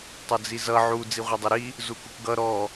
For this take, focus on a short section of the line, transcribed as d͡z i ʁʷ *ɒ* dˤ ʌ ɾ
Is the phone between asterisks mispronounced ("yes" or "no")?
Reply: yes